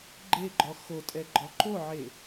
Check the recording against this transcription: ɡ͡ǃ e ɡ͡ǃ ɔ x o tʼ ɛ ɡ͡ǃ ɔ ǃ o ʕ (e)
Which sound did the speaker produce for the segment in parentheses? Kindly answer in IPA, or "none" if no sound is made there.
e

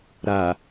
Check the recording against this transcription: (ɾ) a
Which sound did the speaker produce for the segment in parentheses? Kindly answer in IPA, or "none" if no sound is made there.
ɾ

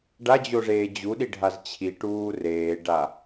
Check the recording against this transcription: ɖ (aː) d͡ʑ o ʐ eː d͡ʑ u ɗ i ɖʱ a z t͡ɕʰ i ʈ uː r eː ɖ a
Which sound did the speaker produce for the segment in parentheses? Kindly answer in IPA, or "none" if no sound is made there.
a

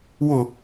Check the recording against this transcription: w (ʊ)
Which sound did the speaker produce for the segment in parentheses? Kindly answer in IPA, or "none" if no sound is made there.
ʊ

